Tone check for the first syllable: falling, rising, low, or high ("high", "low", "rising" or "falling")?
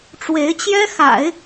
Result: rising